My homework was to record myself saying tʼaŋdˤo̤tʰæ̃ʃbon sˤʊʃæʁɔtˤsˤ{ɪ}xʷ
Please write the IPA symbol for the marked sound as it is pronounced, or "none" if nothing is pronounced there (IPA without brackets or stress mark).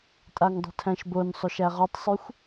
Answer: y